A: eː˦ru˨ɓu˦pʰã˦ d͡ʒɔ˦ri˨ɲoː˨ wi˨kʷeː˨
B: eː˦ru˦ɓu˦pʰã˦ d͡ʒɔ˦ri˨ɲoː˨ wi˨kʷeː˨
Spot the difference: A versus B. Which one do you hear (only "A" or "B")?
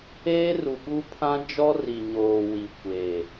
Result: A